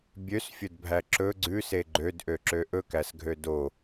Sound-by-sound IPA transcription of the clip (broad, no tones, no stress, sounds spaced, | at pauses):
bʲ ø s fʲ ɵ d bʱ æ ǁ ɵ ɡ͡ǀ ʉ s e ɡ͡ǃ ø d ʔ ø ǁ ø ʔ ɵ k æ s ɡʱ ø d o